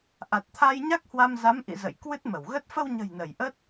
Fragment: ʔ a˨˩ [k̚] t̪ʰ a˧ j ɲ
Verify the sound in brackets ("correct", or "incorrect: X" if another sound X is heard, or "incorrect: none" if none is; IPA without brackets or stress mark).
incorrect: t̚